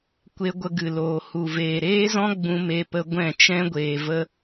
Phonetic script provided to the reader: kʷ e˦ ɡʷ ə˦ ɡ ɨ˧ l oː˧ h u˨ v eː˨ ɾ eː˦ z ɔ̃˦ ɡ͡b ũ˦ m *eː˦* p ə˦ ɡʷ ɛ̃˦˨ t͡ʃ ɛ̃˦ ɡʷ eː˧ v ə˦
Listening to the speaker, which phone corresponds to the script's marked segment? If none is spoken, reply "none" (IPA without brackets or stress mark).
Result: e˦